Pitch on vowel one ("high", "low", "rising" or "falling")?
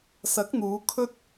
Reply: rising